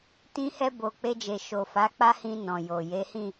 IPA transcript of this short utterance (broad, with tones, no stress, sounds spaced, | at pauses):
t ĩ˧ h ɛ˧ b o˨ k͡p e˧ d͡ʒ e˨ ʃ o˨ f a˨˦ k͡p a˦ h ĩ˧ n ɔ̃˨ j o˨ j e˨˦ h ĩ˦˨